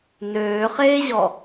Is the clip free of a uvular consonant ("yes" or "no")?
no